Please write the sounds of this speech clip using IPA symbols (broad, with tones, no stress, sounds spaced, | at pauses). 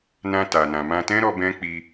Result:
n ã˧ t a˨ n ã˨ m ã˧ t ɛ̃˦ ɾ ɔ˧ b ɛ̃˦ k͡p i˧